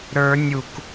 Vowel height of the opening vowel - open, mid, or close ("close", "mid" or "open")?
mid